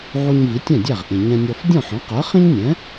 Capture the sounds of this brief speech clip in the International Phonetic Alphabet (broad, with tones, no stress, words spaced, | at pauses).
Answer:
ʕu˧ɲ vi˩˥tʲæ̃˥˩dʲæ˥˩ʁʔĩ˩ ɲɛ̃˧nʲɔ˧f dʲɔ̃˥˩ħɔ̃˩˥qɜ˩˥ χĩ˥ɲnʲɛ̃˩˥